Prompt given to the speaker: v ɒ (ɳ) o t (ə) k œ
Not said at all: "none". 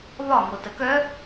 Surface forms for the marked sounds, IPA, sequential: ŋ, ə

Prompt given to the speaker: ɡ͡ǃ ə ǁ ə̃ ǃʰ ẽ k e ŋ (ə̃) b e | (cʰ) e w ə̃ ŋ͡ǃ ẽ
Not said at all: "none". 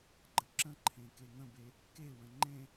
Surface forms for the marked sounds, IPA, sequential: ə̃, k

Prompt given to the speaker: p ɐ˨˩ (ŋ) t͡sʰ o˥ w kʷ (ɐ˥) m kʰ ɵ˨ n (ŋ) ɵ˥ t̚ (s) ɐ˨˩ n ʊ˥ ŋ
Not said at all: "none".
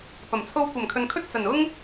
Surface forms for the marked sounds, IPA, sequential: m, ɐ˨˩, kʰ, t͡s

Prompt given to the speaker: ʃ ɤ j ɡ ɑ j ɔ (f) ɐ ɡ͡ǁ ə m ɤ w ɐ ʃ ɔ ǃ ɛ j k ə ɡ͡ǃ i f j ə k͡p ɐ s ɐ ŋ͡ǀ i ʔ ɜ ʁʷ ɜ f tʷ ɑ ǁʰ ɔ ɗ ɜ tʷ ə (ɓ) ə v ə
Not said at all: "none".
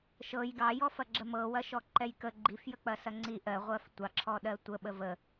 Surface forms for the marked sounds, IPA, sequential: f, ɓ

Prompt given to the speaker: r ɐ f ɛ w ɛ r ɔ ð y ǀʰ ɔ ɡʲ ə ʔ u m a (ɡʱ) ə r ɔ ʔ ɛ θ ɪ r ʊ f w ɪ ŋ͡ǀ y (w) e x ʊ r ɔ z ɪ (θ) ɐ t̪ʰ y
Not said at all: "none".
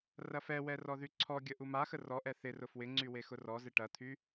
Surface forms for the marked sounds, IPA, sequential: x, w, ʈ

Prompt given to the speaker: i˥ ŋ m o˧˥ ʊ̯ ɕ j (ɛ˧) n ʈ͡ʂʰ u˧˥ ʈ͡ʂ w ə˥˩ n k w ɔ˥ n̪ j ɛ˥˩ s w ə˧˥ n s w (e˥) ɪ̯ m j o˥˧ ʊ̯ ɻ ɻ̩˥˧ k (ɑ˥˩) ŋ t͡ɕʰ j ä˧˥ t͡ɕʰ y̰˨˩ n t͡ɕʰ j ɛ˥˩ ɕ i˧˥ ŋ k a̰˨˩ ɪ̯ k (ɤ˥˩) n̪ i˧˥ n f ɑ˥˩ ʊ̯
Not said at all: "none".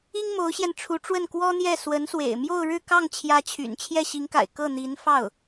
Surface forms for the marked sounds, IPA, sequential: ɛ˧, ḛ˨˩, ɑ˥˩, ɤ˥˩

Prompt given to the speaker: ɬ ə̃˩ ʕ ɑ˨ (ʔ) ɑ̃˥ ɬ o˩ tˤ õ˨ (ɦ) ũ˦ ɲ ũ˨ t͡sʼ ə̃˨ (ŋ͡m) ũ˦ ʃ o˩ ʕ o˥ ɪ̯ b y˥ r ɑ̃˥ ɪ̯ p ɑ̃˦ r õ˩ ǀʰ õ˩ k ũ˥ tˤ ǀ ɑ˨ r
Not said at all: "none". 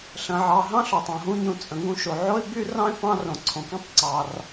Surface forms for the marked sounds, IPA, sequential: ɦ, ɦ, ŋ

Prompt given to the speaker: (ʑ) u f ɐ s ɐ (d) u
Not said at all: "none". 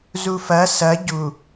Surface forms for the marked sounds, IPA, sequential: z, ɟ

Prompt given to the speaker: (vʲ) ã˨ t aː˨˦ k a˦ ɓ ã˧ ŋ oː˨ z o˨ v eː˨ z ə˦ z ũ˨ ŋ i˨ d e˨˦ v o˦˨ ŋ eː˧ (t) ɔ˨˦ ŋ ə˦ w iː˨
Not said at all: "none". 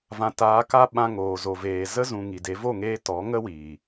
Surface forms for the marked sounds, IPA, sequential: v, t

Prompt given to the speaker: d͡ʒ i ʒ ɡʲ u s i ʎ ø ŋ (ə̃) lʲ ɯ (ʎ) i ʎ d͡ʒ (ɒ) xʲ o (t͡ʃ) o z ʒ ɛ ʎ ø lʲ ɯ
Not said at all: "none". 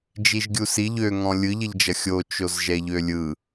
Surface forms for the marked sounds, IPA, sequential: ɔ̃, ʎ, ʌ, t͡ʃ

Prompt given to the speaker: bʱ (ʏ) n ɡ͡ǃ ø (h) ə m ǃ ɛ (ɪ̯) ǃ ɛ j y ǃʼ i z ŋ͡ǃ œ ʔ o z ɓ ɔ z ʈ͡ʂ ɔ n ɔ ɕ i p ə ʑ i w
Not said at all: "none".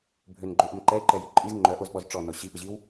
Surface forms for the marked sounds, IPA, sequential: ʏ, ʔ, ɪ̯

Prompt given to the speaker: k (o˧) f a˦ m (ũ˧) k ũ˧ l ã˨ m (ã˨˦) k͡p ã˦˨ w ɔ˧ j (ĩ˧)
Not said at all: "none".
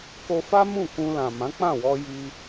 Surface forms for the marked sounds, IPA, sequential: o˧, ũ˦˨, ã˨˦, i˧

